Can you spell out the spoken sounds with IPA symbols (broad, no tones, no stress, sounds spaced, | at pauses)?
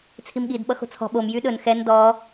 t͡sʰ i m ɠ i d ɓ ʌ x o̤ t͡sʰ ɔ̤ ɓ o m j y ɗ ɵ n x ɛ n d ɔ